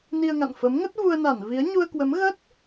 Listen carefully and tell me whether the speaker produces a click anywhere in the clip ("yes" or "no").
no